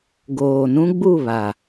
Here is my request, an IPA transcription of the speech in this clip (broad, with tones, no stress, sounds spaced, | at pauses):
ɡ oː˨ n ũ˦ ɡ͡b u˦˨ β a˨